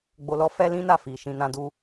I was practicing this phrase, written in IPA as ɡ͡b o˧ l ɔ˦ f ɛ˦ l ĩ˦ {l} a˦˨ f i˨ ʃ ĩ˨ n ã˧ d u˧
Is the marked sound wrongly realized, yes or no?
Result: yes